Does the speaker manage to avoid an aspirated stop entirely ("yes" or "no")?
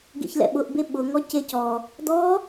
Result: yes